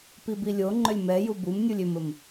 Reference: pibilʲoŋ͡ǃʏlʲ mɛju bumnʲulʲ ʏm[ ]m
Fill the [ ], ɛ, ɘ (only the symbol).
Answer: ɘ